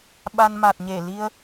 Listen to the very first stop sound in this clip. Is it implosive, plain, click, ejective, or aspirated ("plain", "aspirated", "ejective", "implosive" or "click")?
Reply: implosive